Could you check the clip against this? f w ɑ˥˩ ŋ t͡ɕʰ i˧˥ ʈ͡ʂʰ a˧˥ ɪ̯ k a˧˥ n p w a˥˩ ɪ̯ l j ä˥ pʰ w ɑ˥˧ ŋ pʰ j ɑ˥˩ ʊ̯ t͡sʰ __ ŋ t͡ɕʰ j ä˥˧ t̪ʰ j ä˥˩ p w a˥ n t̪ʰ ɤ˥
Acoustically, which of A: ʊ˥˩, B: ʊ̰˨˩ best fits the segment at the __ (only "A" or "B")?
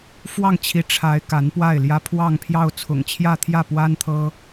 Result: B